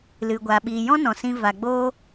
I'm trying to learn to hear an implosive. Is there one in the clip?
yes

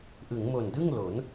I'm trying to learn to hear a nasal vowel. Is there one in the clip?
no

